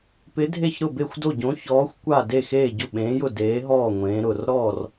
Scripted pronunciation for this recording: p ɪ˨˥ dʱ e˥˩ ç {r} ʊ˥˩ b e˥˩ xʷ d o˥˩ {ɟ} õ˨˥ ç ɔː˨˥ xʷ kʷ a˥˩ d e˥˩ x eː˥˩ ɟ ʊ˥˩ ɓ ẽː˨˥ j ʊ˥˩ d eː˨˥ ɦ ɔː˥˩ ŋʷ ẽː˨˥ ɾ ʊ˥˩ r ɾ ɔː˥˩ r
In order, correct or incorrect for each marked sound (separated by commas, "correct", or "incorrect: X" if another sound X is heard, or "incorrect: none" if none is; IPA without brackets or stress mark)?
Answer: incorrect: ɾ, correct